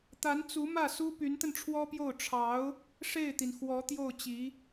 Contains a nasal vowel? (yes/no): no